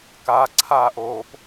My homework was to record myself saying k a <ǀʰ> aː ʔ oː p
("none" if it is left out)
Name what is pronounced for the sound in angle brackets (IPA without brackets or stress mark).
ǀʰ